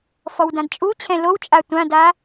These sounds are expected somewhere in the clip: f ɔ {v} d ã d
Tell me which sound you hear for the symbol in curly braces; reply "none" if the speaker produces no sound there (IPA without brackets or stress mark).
w